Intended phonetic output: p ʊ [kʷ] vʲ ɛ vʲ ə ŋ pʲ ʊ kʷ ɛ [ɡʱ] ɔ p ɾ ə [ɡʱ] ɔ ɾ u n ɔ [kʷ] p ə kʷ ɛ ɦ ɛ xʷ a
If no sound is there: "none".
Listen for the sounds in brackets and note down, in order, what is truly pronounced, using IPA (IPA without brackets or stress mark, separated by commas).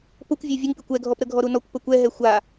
kʷ, ɡʱ, ɡʱ, kʷ